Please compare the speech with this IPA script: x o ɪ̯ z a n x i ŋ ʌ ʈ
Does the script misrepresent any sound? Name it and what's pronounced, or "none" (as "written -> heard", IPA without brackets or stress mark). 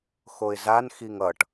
none